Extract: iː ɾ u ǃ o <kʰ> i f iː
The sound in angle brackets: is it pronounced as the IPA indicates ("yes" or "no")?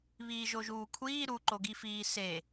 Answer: no